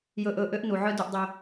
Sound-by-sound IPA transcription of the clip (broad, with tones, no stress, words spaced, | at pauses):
jɵː˨ʔɵː˨ ʔø˦ʔnu˨ʕœ˦ du˧ʔdˤø˧